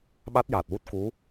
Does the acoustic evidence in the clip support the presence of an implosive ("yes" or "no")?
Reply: yes